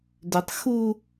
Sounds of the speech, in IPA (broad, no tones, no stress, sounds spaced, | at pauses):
d ʏ tˤ x u